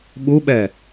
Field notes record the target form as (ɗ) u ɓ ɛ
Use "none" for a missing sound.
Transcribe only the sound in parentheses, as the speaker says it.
ɓ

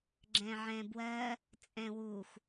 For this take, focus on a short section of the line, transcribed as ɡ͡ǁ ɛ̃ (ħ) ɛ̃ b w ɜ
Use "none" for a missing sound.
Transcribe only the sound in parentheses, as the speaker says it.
ʕ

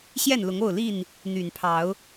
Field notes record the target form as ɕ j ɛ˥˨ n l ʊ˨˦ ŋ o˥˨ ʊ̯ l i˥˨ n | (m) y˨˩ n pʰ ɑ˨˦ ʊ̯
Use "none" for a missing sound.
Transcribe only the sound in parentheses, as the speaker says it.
n̪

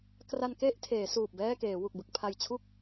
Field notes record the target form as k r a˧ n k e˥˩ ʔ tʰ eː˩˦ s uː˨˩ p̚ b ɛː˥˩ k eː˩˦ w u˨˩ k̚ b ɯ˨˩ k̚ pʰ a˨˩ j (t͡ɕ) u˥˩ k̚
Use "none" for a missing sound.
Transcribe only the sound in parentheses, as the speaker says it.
t͡ɕʰ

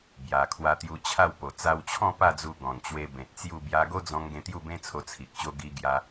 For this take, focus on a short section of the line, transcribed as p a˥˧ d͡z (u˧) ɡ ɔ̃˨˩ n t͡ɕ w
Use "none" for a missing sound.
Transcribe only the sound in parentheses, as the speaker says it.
u˧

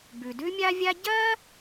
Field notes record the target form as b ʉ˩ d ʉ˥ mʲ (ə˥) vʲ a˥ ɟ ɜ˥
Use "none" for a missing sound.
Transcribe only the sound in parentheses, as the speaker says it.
a˥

